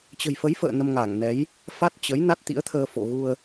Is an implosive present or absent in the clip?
absent